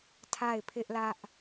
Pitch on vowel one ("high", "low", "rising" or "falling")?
falling